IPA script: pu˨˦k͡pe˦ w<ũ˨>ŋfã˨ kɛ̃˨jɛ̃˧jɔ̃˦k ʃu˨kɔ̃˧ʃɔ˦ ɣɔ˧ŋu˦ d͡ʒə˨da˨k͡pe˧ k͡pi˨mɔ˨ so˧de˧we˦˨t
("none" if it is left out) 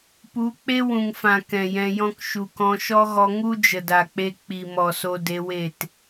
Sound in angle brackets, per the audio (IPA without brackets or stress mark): ũ˨